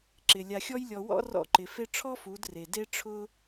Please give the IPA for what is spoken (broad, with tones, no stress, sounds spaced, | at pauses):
ǁ ɪ˨ lʲ a˨ xʲ ɔ˧ j lʲ ɔ˨ w ɔ̰˦ r ɔ̰˦˨ ǃ ɪ˨ f e˧ ʈ͡ʂʰ ɔ˦ f u˨˦ d r e˨ d e˦ ʈ͡ʂʰ ʊ˦